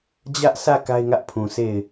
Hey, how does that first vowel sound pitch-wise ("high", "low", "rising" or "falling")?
high